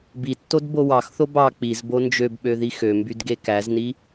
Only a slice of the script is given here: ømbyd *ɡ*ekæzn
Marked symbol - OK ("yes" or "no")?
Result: yes